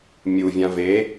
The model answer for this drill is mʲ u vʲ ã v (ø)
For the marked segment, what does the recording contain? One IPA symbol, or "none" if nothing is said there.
e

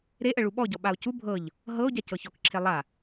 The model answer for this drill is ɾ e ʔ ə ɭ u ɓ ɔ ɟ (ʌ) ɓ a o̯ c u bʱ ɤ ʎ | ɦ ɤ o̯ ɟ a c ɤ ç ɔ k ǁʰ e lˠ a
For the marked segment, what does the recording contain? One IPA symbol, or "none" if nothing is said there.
ɔ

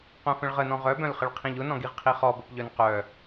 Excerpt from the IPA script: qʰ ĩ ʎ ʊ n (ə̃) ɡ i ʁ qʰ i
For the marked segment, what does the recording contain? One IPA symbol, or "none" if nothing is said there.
ɔ̃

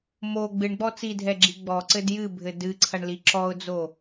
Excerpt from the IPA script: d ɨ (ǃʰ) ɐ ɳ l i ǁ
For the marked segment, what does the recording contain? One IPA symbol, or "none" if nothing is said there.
ǀʰ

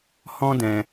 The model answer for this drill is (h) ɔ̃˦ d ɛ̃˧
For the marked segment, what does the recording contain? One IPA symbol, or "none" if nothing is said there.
h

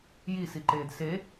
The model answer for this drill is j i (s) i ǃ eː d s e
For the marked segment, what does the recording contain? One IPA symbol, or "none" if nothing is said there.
s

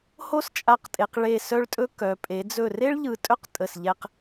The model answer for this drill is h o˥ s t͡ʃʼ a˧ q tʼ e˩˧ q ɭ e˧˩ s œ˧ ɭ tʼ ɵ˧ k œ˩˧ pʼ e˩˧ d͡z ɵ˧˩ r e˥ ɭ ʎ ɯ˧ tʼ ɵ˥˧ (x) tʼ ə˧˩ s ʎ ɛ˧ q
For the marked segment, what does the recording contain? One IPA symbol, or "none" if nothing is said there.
q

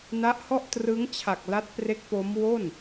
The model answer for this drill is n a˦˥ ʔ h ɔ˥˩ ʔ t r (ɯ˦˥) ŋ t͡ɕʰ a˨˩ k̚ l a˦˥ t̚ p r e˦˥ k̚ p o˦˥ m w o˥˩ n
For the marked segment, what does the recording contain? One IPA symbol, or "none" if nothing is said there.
ɯ˦˥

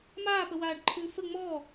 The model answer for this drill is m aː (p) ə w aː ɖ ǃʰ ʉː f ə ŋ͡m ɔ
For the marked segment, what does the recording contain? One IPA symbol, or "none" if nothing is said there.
p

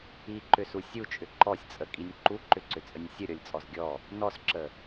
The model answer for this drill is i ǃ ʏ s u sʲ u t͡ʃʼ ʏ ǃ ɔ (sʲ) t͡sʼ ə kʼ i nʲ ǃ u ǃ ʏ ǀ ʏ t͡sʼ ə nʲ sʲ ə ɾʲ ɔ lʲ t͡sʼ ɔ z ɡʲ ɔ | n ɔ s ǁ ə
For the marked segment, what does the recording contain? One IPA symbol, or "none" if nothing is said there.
sʲ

